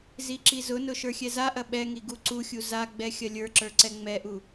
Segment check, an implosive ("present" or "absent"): present